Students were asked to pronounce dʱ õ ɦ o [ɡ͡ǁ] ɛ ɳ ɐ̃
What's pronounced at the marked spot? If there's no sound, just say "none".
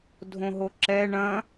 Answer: ǁ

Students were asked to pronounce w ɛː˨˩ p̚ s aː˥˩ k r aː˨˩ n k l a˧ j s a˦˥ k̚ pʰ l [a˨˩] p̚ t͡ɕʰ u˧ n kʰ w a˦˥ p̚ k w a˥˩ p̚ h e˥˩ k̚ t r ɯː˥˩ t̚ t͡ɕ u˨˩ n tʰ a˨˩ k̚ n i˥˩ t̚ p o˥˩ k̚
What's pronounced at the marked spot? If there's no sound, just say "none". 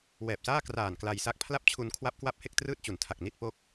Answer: a˥˩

